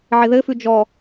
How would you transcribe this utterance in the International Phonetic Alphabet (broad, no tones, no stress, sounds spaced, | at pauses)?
ʕ ɪ ð ɘ f ʉ d͡ʒ ɔ